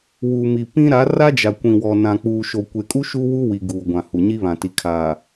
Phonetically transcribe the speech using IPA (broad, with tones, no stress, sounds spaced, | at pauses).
w uː˨ m i˨ p ĩ˦ ɾ a˨˦ r a˦ d͡ʒ a˨ kʷ ĩ˨ w ɔ˨ n ã˨ k͡p uː˨ ʃ o˨ kʷ e˨ kʼ u˦ ʃ u˦ w u˦ w i˨ ɡ uː˨ ɡʷ ã˨ h u˨ ɲ i˦ β ã˨ t i˨ kʰ a˨